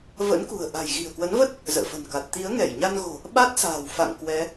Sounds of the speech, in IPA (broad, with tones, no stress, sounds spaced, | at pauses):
v ə̰˧˥ n k ṳ˨˩ ə̯ ʔ a̤˨˩ j ɣ i̤˨˩ ə̯ k w ə˨˦ n v ə˦˥ t̚ | z ə̰ː˧˨ f ə̤˨˩ n k a˨˩ t̚ t̪ i˨˦ ə̯ ŋ ɛ˧˩ j ɲ a˧ n ɣ o̤˨˩ | ɓ a˦˥ t̚ s a̤ː˨˩ w f a̰˧˨ ŋ k w ɛ˨˦